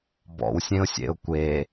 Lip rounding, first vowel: rounded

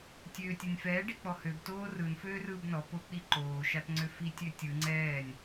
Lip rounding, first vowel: rounded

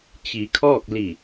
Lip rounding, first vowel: unrounded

